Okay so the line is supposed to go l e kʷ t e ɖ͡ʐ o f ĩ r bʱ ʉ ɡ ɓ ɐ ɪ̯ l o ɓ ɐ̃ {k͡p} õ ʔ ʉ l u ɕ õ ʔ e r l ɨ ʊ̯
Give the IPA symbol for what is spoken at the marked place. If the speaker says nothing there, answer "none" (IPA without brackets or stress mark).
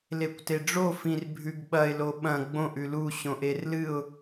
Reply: ɡ͡b